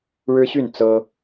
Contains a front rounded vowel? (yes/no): yes